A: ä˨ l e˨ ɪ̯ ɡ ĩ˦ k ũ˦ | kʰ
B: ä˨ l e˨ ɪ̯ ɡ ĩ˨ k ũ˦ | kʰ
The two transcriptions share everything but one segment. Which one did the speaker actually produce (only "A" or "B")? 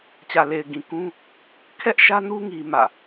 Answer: B